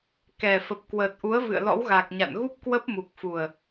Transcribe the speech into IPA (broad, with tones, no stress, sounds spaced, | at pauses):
k ɛ˨˩ f ə˨˩ p̚ k w əː˨˩ t̚ ʔ u˨˦ ə̯ v ɨ̰˧˨ ə̯ l ɔ̰˧˥ w ɣ a˨˩ k̚ ɲ a̰˧˨ n ɣ u˦˥ p̚ k w ə˦˥ p̚ m u˨˩ k̚ f u˨˩ ə̯